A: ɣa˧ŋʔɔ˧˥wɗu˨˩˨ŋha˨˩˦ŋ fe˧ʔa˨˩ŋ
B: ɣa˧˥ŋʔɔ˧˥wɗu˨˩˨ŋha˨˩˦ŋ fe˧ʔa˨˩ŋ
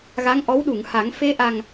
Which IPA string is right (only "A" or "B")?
B